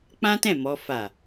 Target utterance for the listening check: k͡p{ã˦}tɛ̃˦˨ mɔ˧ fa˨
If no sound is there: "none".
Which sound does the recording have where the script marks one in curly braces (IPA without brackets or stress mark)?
ã˦